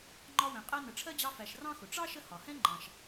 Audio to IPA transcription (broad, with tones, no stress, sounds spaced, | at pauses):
ŋ͡ǃ ɒ˦ w ɛ̃˨ qʼ ɜ˦ n ə˨ ʈ͡ʂʰ ɜ˥ d͡ʑ ɑ˦ f æ˨ ʃ r ɑ̃˥ x ʊ˩ ʈ͡ʂ ɑ˥ ʃ ə˦ h ɒ˩ h ɛ̃˥ ŋ͡ǃ ɑ̃˨ ʃ